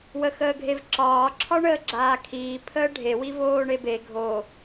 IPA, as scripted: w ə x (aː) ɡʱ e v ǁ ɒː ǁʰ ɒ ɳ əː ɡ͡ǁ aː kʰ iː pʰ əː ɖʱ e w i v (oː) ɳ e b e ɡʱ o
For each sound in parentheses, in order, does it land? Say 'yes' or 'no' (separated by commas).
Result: no, yes